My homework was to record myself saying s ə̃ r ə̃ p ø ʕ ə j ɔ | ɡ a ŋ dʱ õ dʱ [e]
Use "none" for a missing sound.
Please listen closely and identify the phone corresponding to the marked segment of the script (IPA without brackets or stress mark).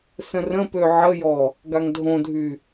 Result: y